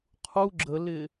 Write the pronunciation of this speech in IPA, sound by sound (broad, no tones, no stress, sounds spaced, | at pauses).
qʰ u ɡ͡ǁ ə l ɪ